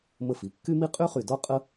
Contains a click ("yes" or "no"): no